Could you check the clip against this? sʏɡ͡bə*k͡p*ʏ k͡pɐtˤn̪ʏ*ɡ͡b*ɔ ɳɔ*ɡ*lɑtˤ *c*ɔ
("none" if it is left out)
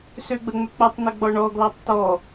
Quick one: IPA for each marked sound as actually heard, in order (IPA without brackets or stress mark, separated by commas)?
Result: ŋ͡m, ɡ͡b, ɡ, t̪